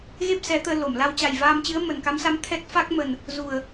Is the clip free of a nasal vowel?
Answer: yes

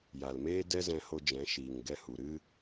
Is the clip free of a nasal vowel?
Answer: no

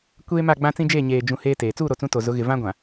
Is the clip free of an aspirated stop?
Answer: yes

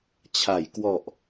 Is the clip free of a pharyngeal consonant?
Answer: yes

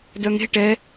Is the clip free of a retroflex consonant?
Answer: no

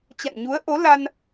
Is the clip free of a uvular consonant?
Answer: yes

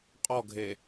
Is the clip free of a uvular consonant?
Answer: no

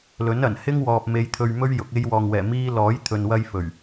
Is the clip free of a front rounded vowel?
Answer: yes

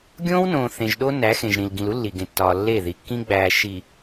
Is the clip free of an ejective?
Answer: yes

